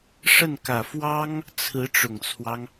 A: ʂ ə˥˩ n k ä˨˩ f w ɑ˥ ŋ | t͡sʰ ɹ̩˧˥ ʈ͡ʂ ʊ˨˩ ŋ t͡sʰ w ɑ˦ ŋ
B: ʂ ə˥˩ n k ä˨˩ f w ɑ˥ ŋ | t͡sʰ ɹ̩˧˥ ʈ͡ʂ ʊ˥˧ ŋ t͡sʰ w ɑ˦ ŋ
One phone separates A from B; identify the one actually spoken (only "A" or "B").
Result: A